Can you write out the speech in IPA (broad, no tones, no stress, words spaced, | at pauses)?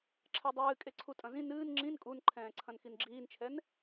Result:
ǁʰɛdˤɨː kʼeǀʰutʼɐ̃zĩ nɨːn ŋ͡ǁĩn kʼunǃʰɛ̃ː ǀʰɐ̃nxinɡ͡ǁiːnt͡ʃʰɛn